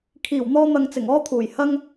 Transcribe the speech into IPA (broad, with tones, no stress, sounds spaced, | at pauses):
kʰ iː˨˩ w n̪ ɔː˧ n̪ ɐ˨ ŋ t͡s ɪ˨˩ ŋ ɔː˥ t̪ʰ uː˨˩ j h ɐ˥ ŋ